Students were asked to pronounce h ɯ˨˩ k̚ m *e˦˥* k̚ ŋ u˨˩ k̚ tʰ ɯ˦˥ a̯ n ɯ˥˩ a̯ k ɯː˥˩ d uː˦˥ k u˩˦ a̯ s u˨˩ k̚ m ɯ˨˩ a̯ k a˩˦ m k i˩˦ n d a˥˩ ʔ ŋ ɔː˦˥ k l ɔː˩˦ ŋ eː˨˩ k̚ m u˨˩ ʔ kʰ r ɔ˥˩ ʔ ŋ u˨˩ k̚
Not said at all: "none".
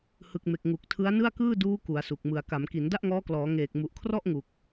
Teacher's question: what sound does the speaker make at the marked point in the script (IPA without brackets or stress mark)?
e˨˩